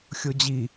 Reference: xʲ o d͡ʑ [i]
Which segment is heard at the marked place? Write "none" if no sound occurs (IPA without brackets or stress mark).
i